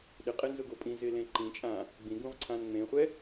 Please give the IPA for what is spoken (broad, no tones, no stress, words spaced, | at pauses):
ɗɪqʼenzʊɡo pʼĩzɪlẽ ǃĩt͡ʃʼã | ɡ͡bĩɡũʁǀʰãn ŋ͡mẽχʷɛ